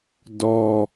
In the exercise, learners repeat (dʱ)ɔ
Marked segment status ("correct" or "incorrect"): incorrect